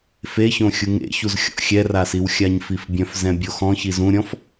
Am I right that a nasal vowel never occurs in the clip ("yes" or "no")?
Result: no